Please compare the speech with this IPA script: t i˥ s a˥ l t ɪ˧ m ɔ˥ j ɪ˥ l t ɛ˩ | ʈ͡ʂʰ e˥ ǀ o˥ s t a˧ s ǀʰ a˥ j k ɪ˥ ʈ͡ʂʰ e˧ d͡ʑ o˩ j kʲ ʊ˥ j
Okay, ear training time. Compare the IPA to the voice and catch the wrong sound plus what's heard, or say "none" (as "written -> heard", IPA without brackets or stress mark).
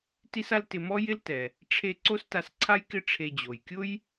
none